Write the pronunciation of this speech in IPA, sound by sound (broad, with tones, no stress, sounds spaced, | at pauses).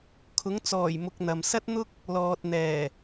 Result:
kʰ ʊ˨˥ ŋ t͡s ɔː˨˩ j m ʊ˨ k̚ n̪ ɐ˨ m s ɐ˥ t̚ n̪ ʊ˥ k̚ | l ɔː˨ t̚ n̪ ɛː˨˩